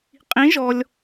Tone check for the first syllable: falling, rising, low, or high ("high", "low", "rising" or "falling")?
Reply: rising